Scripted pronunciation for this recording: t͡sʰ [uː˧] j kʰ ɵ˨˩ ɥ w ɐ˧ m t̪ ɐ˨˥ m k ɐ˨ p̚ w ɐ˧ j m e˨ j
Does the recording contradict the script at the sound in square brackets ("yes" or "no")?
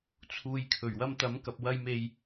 yes